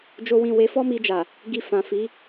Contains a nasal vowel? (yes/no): yes